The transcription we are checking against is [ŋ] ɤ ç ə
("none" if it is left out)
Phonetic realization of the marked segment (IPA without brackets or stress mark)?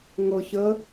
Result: ŋ